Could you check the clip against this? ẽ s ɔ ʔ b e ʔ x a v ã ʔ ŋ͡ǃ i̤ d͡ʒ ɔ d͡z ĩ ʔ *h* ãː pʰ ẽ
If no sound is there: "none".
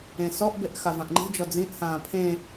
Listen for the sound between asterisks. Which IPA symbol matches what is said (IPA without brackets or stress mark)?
h